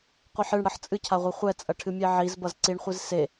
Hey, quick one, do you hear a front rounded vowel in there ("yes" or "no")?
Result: no